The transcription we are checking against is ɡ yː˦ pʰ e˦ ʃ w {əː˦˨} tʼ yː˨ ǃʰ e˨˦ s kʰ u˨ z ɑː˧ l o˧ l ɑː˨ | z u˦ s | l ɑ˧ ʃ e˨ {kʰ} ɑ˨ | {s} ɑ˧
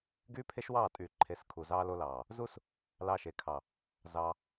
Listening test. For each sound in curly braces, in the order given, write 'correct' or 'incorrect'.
incorrect, correct, incorrect

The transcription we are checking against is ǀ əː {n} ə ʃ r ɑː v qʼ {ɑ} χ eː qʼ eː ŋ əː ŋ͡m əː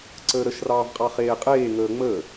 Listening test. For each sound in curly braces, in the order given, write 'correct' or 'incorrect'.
incorrect, correct

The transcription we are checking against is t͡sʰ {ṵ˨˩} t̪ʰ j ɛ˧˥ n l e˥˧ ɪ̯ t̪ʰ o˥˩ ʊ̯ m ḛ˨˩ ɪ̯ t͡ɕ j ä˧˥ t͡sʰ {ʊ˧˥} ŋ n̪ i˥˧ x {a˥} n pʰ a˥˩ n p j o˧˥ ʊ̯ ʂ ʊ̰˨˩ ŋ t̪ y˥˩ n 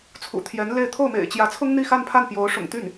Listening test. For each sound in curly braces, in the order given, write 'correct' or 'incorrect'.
correct, incorrect, incorrect

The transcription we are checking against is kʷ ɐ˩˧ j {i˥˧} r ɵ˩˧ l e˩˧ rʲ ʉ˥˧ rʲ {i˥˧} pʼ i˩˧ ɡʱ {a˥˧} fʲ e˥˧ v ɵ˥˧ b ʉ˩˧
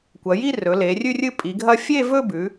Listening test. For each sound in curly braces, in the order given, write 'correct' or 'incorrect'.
correct, incorrect, incorrect

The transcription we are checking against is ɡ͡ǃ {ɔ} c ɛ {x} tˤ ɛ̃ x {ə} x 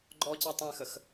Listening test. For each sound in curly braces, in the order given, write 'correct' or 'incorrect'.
correct, incorrect, correct

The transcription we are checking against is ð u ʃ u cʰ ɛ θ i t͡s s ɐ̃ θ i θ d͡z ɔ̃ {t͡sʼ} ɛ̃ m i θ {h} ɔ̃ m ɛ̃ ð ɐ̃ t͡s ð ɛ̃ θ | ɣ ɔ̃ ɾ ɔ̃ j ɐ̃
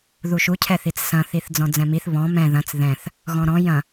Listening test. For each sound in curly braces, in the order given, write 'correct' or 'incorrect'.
incorrect, incorrect

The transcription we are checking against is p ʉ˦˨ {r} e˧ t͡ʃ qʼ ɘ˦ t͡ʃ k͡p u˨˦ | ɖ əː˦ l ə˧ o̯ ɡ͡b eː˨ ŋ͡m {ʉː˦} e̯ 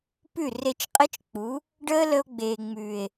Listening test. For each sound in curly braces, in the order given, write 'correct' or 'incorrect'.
correct, incorrect

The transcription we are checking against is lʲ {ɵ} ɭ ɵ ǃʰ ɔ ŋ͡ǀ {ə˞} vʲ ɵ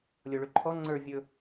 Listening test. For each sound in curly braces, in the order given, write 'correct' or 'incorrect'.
incorrect, correct

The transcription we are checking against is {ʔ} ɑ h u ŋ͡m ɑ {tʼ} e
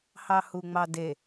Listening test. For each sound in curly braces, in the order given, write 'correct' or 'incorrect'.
incorrect, incorrect

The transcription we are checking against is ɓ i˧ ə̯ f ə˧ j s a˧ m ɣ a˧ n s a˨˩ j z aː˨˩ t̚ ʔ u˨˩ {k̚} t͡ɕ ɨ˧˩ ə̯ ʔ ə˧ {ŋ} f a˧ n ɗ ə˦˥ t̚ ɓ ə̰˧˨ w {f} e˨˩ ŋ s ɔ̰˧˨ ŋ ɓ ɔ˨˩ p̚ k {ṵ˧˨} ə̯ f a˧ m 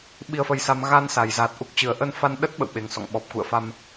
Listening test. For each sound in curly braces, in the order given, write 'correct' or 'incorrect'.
correct, incorrect, incorrect, correct

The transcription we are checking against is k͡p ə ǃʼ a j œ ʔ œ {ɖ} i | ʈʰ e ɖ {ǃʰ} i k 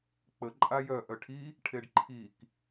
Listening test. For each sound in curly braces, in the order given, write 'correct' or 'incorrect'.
incorrect, correct

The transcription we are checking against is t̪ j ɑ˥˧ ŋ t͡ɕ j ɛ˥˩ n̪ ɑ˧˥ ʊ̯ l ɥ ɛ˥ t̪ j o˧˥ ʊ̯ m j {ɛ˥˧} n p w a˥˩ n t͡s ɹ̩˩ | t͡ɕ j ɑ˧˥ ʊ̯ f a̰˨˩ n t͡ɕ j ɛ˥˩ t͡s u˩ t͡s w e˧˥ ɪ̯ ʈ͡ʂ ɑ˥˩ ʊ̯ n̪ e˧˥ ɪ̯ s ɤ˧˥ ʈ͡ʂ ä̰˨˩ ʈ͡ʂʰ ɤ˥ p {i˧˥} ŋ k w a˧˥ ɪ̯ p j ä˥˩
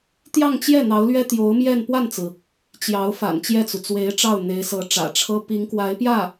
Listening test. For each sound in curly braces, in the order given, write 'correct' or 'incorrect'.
correct, correct

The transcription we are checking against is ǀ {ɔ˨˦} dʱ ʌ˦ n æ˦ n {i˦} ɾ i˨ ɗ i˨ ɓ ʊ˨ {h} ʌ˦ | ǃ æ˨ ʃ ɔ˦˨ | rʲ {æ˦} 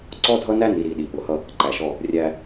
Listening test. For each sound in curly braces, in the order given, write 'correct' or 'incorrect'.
incorrect, incorrect, correct, correct

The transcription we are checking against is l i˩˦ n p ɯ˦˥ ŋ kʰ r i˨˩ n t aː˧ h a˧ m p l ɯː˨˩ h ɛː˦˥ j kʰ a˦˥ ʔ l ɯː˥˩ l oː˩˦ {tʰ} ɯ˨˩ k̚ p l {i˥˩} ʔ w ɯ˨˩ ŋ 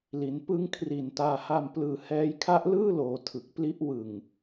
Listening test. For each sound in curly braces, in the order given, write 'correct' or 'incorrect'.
correct, incorrect

